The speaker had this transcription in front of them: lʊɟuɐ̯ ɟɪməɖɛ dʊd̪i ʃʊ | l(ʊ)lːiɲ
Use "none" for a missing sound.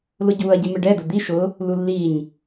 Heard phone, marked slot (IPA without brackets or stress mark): u